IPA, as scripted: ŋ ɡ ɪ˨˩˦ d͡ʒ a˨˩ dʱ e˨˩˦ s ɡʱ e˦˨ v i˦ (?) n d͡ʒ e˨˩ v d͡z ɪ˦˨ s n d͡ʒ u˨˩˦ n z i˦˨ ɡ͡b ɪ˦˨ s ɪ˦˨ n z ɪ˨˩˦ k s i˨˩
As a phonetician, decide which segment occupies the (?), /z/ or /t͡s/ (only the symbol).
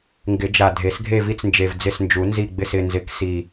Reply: t͡s